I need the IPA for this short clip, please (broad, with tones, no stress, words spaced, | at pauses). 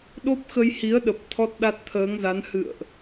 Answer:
ɗo˦˥p̚xə˧jhi˨˦ə̯ɗə˨˩p̚ t̪ʰɔ˦˥t̚ɗa˦˥t̚ t̪ʰəː˨˦ŋza˨˦n hɨ̰˧˨ə̯ʔ